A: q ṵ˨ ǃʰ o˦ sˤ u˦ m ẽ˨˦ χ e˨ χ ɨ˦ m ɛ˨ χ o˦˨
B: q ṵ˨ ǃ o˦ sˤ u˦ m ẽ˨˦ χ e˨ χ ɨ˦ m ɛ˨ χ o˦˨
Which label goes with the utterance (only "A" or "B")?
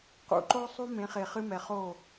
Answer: B